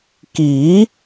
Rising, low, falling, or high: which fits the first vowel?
rising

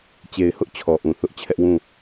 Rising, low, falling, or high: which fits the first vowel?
low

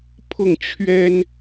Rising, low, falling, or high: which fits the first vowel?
falling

